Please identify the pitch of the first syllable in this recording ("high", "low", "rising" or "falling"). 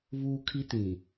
high